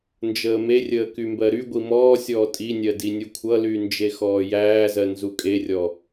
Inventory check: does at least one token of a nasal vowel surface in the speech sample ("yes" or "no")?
no